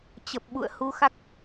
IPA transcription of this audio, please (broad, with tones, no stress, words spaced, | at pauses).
t͡ɕə˨˩p̚ɓṵ˧˨ə̯ hu˧xa˦˥k̚